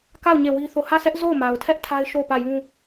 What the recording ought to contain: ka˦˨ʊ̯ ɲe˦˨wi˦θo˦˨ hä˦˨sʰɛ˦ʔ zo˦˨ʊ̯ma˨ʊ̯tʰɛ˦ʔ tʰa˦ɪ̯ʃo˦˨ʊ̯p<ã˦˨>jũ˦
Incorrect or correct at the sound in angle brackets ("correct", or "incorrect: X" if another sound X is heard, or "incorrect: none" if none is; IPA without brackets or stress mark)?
incorrect: ä˦˨